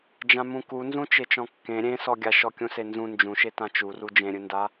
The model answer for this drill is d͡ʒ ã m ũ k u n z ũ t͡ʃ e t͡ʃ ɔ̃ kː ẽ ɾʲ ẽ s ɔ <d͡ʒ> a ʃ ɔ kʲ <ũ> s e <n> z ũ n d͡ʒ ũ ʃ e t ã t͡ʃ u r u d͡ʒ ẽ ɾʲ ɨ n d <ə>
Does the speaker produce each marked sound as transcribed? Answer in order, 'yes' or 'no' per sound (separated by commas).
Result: no, yes, yes, no